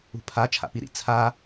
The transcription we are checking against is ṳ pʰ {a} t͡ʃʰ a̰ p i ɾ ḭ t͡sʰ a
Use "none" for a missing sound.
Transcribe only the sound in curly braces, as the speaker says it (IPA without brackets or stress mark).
a